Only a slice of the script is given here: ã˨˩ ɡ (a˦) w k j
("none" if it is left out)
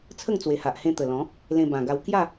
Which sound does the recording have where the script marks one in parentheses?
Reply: a˧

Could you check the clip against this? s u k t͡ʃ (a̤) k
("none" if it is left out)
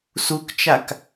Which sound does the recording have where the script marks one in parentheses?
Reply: a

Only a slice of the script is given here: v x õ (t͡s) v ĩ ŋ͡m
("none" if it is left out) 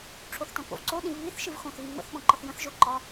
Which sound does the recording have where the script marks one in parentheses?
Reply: θ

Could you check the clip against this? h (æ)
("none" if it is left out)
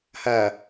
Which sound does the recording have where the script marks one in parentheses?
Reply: æ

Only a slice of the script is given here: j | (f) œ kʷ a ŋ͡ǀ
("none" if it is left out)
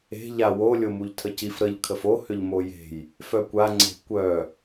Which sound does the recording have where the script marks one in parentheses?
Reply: f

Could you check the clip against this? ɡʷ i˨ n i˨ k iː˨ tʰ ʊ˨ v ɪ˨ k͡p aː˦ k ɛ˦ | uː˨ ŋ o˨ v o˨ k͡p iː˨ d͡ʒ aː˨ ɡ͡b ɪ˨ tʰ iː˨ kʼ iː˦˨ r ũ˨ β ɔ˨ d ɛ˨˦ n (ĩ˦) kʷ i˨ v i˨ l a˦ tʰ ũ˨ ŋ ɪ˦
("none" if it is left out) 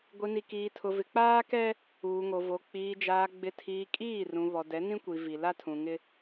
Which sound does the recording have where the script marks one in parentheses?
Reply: ĩ˦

